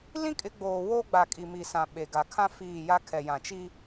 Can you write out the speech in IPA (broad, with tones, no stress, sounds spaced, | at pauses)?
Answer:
l ĩ˦ kʼ ɪ˨˦ ɡ͡b oː˨ w oː˦ ɡ͡b a˨ kʼ i˨ m i˨ s ã˨ ɓ e˨ ɡ a˨ kʰ ã˦ f iː˦˨ j a˦ kʰ ɛ˨ j ã˨ t͡ʃ i˦